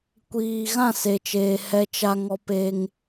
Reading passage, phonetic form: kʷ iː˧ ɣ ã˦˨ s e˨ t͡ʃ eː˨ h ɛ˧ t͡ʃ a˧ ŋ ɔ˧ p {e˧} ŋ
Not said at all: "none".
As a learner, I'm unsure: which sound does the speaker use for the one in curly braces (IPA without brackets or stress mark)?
e˧